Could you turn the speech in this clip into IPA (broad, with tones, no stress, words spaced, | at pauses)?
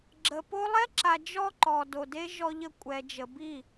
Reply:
ɡ͡ǁə˨ po˦ lˠɛ˦ǁa˨ d͡ʒɔ˦ǃɔ˨do˨de˦ ʒɔ˦ʎə˦ kʷʼɛ˨d͡ʒə˨ bi˦˨